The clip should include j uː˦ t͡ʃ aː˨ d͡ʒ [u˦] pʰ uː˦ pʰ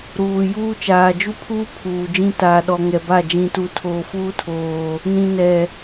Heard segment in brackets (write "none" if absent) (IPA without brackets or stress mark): u˦